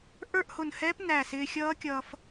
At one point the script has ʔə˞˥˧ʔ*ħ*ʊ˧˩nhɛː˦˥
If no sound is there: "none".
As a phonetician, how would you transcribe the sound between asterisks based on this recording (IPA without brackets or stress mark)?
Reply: h